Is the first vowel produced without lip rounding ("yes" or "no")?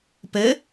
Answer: yes